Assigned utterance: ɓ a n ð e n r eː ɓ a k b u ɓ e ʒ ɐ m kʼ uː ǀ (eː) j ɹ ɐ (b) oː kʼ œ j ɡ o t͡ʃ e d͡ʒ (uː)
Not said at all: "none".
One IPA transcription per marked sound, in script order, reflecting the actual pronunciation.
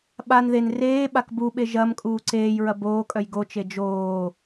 eː, b, oː

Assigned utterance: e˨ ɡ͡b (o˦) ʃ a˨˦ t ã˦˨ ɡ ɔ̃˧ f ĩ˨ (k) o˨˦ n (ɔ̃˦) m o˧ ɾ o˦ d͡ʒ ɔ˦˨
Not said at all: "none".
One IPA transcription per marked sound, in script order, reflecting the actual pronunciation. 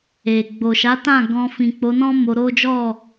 o˨, k͡p, ɔ̃˦

